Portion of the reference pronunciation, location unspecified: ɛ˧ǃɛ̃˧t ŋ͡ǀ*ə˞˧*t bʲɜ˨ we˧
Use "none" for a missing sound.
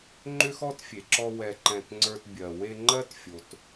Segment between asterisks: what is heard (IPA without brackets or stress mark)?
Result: ə˞˧